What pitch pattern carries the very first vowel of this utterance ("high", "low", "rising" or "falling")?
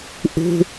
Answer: high